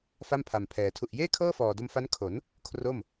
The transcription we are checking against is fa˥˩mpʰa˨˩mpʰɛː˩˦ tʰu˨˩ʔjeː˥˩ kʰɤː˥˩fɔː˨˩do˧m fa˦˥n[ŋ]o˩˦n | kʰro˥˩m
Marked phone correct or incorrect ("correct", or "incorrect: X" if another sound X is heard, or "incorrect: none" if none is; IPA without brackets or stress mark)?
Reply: incorrect: kʰ